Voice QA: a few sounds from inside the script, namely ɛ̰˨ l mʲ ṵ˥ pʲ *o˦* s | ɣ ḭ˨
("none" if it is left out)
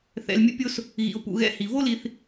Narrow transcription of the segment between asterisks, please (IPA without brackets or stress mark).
o˦